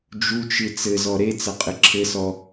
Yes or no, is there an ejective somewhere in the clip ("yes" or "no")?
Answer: yes